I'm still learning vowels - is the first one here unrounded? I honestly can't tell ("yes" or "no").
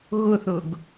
no